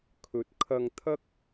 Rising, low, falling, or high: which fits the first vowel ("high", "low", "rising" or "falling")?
rising